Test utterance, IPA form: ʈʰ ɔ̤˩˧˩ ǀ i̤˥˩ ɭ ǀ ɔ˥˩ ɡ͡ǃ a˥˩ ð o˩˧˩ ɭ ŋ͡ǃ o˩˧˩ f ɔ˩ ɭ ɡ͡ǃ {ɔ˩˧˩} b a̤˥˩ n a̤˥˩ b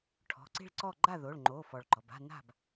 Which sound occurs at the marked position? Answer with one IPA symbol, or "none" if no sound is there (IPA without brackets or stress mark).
ɔ˩